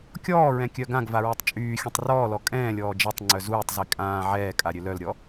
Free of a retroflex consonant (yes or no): yes